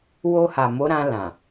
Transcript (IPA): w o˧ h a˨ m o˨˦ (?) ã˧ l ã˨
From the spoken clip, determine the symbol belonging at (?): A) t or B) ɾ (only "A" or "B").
B